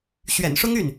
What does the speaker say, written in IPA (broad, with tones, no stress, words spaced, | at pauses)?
ɕɥɛ̰˨˩nʂʊ˥ŋy˥˩n